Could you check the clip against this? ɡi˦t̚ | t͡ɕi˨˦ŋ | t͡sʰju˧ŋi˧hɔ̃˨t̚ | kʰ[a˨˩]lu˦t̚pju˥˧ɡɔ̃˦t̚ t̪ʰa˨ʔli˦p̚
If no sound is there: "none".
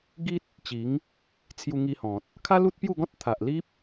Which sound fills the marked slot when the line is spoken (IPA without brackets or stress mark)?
a˦